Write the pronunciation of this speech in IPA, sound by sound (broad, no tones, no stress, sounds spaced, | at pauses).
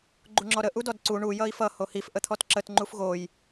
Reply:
ɡ͡ǃ u ŋ͡ǁ ɔ ɾ ə ʔ u d ɔ d ǀ u ɳ u j ʌ i̯ f ʌ h o h i f ʔ ə t̪ʰ ɔ t ǁ ə t ŋ͡ǃ u f ɣ o j